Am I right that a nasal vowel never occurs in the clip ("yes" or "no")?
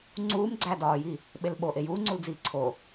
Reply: yes